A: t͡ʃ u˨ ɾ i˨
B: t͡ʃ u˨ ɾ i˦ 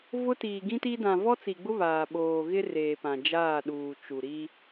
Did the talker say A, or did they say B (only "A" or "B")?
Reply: B